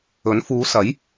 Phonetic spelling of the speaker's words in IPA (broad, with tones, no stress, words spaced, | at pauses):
ɵ˨˥n fuː˨˧sɐ˨˥j